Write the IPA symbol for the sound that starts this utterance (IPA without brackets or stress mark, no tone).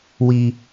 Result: w